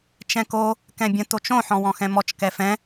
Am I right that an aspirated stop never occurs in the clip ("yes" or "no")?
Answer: yes